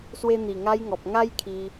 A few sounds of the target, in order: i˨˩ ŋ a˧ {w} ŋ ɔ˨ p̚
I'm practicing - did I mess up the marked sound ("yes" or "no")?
yes